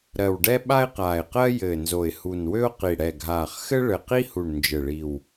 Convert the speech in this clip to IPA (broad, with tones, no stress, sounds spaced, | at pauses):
ɾ ɜ˨˩ w ɖ ɛ˥ ɓ a˥ ɪ̯ q aː˨˩ ɪ̯ q ɜ˥ j ɘː˨˩ n z o˨˩ ɪ̯ h u˨˩ n w ø˥ ʊ̯ q i˨˩ ɽ ɛ˨˩ ɡʱ aː˨˩ χ x ɘ˥ ɭ ɘ˨˩ q i˥ h u˨˩ ɳ n d͡ʒ ɘ˨˩ ɭ i˨˩ w